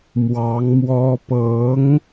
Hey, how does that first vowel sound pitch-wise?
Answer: rising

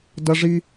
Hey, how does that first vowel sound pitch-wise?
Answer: high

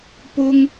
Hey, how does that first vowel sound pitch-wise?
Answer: high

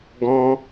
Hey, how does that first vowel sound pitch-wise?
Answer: high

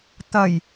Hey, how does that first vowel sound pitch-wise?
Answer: low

